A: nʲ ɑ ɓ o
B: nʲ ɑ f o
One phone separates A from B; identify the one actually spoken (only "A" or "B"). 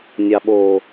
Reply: A